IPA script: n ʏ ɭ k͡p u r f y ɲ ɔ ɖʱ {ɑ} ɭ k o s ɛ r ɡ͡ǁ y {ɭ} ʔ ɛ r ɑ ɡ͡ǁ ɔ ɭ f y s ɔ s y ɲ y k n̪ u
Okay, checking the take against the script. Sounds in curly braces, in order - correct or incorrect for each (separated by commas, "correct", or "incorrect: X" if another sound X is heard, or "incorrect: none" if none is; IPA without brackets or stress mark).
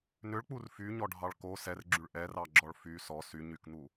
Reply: correct, correct